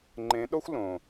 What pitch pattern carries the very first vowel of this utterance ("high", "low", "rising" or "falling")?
rising